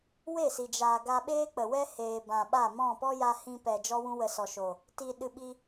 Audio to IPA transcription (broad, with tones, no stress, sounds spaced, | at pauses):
w e˦˨ s i˨ d͡ʒ aː˨ ɡ a˧ ɓ eː˦ k͡p ə˨ w ɛ˦ h eː˨ b ã˨ ɓ a˦˨ m ɔ̃˦˨ p ɔ˦ j a˧ h ĩ˧ p ɛ˨ d͡ʒ ɔ˦ w ũ˦ w ə˧ s ɔ˨ ʃ oː˨ | t iː˨ ɗ ɨ˨ ɓ i˧